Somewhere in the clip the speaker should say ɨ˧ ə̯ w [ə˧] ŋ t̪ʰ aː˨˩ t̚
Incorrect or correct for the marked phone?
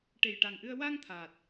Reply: incorrect: a˧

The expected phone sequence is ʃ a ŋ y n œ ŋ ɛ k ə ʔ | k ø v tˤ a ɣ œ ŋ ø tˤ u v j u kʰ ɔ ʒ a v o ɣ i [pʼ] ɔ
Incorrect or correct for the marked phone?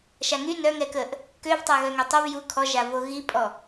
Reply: correct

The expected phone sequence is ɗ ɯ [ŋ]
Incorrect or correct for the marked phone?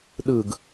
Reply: incorrect: ɡ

